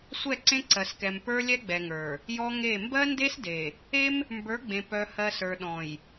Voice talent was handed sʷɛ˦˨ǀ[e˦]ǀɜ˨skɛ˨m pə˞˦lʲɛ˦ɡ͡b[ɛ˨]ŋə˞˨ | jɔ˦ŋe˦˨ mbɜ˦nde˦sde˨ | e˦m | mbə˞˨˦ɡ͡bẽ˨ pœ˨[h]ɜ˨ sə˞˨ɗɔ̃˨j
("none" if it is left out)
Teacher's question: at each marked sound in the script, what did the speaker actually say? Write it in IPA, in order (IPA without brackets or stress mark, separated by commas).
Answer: ẽ˦, ɛ˨, h